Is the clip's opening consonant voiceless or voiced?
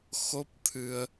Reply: voiceless